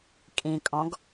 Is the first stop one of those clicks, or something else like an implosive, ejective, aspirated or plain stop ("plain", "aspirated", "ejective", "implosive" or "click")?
ejective